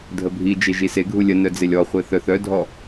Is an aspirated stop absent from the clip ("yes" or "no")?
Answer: yes